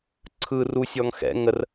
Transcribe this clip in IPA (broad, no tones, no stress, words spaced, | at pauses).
ǀʰɯr usʲɔŋ xɛ̰ ŋər